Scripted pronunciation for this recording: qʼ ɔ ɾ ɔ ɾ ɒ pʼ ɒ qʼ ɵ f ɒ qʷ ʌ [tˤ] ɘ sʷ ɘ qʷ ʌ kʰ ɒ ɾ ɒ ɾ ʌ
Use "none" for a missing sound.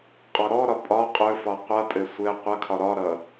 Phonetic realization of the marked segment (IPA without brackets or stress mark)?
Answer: tʼ